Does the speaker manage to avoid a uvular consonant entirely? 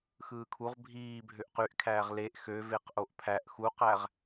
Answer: no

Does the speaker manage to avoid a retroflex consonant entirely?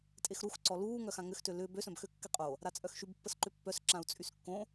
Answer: yes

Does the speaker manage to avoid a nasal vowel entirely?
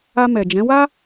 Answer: no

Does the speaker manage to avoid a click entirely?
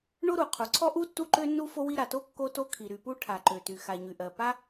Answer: no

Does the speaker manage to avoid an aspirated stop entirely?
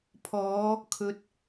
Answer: no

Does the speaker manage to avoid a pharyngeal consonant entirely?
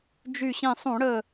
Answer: yes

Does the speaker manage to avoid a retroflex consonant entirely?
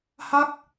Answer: yes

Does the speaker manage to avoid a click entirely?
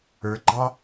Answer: no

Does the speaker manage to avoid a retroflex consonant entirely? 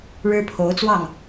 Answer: no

